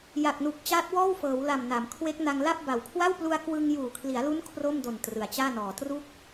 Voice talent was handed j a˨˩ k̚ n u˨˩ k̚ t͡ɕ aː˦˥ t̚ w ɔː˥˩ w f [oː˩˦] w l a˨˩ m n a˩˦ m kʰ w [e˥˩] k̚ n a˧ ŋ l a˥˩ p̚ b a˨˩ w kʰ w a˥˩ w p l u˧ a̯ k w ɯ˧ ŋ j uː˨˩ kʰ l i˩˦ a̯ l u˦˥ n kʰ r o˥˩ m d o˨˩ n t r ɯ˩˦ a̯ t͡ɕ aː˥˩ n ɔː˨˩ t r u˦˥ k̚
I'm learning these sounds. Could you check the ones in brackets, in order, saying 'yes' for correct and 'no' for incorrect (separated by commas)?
no, no